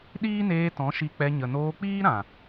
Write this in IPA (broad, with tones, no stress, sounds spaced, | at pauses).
ɗ iː˦ n eː˧ t ɔ̃˨˦ ʃ i˧ k͡p ɛ˧ ɲ ə˨ n oː˧ k͡p iː˦ ɾ ã˨